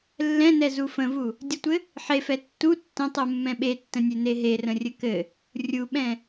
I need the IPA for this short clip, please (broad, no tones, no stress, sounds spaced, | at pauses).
lː ɛ̃ n ɛ z u f ə̃ v u | dʲ ə tʷ ɘ | ħ e f ɛ tː u tː ə̃ tˤ u mː ɛ̃ ɓ e tː ə̃ nʲ e n e ɦ e r ə̃ rʲ ɘ k ɘ | rʲ u ɓ ɛ̃